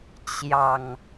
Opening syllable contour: low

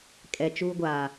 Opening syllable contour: low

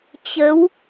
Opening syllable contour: rising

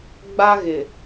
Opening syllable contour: high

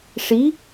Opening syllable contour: rising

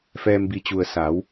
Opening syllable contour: low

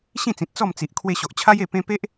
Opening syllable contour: falling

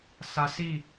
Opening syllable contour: high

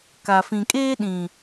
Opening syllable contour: low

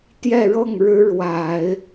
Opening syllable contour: falling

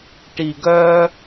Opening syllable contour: low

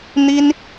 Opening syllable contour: high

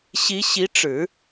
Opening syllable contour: rising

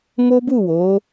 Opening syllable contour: high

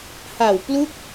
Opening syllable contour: low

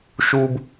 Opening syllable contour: high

